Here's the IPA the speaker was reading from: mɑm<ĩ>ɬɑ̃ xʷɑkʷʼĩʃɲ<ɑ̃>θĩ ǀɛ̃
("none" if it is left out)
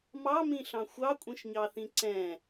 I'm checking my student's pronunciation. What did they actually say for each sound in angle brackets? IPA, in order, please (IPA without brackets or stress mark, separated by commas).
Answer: ĩ, ɑ